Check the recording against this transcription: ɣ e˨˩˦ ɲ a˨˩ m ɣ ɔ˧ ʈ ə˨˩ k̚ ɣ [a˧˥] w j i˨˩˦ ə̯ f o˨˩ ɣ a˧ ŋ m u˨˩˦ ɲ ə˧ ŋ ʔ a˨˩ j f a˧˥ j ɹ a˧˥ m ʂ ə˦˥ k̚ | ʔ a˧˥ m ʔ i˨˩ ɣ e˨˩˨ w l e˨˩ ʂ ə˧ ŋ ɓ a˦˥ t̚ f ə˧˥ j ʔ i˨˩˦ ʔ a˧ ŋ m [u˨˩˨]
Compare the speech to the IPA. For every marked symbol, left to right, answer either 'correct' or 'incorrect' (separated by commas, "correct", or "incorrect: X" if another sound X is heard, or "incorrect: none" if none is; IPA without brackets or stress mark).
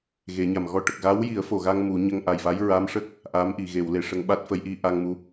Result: correct, incorrect: u˧˥